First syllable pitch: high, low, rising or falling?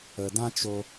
low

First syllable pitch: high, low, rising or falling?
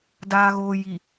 low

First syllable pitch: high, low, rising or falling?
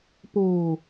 low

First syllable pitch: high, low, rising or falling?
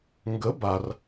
rising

